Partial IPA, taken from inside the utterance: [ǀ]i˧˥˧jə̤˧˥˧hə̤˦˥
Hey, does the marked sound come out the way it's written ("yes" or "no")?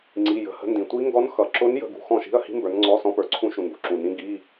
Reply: no